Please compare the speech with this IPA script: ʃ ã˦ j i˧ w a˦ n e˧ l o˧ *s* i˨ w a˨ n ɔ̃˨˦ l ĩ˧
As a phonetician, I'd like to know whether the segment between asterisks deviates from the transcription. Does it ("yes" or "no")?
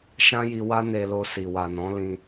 no